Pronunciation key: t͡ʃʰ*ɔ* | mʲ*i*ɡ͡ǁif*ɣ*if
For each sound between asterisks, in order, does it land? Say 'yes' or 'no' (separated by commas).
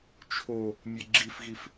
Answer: no, no, yes